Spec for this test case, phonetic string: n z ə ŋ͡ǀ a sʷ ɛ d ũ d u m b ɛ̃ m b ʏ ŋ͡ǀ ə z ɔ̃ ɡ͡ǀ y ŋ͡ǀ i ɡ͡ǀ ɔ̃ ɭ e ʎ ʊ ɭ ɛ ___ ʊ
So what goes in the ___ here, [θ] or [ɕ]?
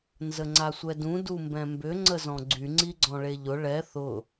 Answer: θ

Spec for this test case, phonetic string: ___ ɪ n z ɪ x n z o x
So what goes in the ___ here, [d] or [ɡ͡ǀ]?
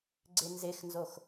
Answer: ɡ͡ǀ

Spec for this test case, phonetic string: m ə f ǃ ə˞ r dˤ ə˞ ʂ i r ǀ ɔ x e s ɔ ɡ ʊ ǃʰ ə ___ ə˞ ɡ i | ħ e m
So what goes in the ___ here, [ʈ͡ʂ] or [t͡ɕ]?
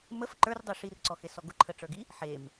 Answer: ʈ͡ʂ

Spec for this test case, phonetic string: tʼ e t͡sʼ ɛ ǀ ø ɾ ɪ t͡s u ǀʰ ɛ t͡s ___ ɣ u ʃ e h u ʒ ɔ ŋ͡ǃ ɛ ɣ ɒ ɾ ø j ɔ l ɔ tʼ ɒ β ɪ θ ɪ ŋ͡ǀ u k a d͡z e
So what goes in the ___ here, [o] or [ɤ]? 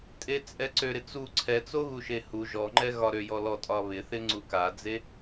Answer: o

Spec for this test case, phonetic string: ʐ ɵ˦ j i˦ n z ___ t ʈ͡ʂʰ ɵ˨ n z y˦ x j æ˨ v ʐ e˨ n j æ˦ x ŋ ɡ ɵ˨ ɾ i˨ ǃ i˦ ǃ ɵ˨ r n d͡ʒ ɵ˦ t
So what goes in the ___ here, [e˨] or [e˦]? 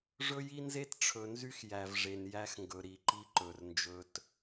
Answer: e˦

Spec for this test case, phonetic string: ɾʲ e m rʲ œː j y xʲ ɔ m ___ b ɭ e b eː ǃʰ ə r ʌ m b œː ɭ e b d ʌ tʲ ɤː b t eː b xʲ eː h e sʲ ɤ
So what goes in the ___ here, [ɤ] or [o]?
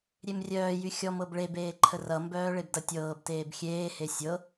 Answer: ɤ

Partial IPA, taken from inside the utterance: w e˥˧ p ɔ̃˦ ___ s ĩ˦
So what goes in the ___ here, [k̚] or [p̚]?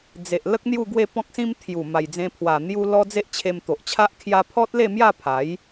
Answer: k̚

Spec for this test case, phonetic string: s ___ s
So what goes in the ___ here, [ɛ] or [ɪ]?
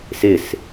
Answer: ɪ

